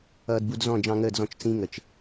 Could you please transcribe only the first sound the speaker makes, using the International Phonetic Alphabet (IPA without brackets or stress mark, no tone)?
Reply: ʌː